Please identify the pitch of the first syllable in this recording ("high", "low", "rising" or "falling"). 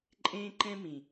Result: high